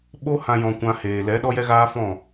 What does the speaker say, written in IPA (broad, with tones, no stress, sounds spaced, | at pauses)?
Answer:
ɓ o˦ h ã˧ j ɔ̃˧ kʷ ã˧ h eː˨ l ɛ˨˦ ɗ ɔ˦ j ɛ˦ ɣ aː˦ f ɔ̃˦˨